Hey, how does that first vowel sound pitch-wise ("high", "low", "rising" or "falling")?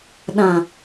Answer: low